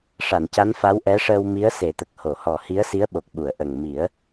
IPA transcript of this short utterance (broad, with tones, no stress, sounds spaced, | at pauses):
ʂ a˨˩˨ n c a˧˥ n f a˧˥ w ʔ ɛ˧˥ ʂ əː˧ w m i˧˥ ə̯ s e˨˩˦ t̪ ə˨˩ k̚ h o˨˩˨ h ɔ˨˩ h i˧˥ ə̯ s i˧˥ ə̯ ɓ o˨˩ k̚ ɓ u˨˩˨ ə̯ ʔ ə˨˩ ŋ m i˨˩˦ ə̯